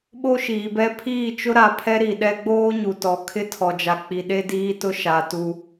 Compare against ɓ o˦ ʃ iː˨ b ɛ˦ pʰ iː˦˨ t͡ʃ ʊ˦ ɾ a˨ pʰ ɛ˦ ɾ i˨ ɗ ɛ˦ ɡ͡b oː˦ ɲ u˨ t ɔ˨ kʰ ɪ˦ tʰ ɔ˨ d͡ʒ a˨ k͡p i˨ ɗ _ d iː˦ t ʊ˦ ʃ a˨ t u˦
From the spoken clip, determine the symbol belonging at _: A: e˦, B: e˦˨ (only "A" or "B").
A